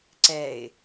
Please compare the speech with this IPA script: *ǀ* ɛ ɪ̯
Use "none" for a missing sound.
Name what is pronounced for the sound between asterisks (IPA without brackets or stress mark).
ǀ